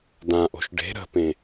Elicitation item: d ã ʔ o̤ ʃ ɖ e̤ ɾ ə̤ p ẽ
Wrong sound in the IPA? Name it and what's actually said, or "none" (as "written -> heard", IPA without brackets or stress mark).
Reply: none